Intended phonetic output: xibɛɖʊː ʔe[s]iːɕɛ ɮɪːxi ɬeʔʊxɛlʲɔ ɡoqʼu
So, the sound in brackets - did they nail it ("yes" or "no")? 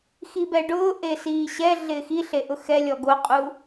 yes